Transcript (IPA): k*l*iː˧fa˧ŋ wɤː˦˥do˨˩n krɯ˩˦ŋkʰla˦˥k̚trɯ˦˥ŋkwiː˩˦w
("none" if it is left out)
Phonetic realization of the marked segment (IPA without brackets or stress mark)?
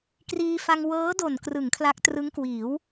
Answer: r